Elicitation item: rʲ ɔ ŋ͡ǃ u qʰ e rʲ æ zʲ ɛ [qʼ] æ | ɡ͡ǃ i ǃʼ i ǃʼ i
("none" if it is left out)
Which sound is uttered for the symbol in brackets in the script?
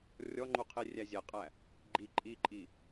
qʼ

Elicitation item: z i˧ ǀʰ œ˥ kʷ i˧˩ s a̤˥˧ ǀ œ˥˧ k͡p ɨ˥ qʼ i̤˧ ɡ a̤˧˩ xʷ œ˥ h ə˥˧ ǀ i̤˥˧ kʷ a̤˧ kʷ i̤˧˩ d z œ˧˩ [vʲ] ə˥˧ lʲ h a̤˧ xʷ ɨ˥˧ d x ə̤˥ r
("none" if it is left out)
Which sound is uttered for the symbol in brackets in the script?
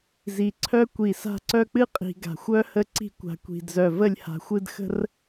v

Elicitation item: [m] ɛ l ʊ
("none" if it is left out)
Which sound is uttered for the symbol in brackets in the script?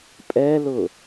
pʼ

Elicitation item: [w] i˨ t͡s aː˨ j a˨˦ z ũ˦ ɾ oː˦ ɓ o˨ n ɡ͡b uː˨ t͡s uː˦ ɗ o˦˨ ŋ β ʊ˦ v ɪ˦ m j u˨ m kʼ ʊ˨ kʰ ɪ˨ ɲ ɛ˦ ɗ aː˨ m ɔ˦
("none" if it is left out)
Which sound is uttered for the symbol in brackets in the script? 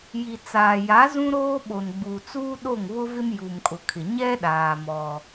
j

